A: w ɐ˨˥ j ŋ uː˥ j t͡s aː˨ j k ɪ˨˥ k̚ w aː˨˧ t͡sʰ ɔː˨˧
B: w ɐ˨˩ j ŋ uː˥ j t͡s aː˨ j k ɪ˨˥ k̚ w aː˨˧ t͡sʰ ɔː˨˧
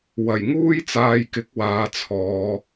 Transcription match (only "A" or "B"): B